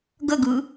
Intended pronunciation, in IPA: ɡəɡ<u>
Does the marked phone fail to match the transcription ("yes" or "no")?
yes